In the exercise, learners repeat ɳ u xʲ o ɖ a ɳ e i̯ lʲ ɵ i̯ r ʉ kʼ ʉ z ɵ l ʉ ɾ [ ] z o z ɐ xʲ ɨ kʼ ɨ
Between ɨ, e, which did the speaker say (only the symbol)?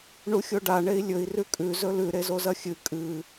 e